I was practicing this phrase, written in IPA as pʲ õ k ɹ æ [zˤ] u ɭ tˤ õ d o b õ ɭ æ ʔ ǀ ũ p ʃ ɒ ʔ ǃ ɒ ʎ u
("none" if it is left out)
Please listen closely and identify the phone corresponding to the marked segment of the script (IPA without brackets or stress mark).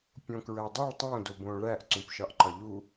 dˤ